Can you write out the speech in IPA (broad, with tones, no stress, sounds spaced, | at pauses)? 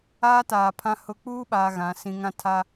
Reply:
aː˦ t aː˨ pʰ ã˦ h ʊ˦ k͡p uː˦ ɓ aː˨ ɣ ã˨˦ s ĩ˦ ŋ ã˦ tʰ a˦